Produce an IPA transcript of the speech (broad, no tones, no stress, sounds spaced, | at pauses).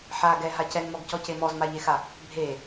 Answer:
ħ a ɡ ɛ ɦ a c ɛ n m ɔ ɡ c ɔ c e m ɔ z m a ʎ e x a | bʱ e